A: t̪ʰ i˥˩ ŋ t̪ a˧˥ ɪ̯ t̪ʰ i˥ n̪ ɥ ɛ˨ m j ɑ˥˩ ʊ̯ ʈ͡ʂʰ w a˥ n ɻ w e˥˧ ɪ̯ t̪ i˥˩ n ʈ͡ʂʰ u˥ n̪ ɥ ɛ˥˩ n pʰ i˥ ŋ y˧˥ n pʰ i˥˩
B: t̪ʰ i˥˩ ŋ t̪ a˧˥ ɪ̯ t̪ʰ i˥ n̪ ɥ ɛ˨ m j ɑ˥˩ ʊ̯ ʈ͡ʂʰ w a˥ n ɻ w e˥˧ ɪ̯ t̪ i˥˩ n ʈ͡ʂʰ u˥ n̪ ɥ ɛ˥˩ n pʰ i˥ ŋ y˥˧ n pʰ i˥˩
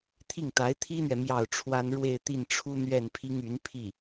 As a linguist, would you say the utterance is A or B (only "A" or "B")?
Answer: A